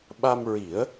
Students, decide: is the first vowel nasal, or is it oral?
oral